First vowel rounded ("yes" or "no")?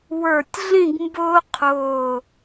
no